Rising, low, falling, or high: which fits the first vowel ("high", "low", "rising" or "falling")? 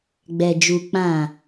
low